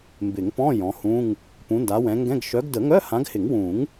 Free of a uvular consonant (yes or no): yes